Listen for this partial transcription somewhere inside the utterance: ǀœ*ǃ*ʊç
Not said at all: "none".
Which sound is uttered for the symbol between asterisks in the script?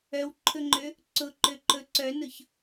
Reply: n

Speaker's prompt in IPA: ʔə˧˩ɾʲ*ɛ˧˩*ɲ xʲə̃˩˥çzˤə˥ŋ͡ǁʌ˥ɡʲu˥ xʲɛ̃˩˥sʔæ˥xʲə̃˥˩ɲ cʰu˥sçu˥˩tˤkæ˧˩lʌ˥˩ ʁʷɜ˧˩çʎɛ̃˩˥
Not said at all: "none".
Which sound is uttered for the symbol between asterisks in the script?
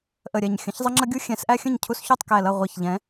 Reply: ɛ˧˩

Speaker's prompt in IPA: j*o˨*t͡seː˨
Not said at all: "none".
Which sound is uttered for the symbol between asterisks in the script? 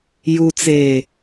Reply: u˨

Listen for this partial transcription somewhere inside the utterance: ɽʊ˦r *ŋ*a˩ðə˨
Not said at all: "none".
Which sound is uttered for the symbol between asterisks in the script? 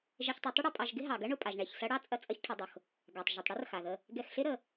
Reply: x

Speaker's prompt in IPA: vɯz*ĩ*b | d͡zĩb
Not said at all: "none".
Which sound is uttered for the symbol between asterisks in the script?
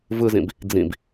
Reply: ĩ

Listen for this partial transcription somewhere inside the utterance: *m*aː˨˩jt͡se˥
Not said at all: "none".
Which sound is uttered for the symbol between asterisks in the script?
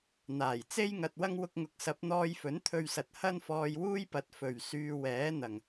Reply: n̪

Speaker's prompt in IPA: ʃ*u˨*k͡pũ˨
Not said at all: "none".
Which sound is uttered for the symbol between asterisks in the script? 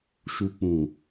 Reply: u˨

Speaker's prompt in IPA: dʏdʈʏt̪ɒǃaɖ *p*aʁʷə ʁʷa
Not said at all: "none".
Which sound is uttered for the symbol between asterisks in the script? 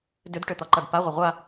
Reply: p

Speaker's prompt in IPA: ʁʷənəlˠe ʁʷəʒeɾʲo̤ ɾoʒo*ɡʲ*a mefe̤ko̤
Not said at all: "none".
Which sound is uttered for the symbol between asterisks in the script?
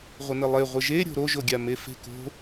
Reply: ɡʲ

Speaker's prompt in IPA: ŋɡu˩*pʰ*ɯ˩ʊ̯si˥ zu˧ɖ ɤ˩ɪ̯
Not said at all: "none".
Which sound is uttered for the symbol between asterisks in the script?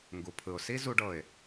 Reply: pʰ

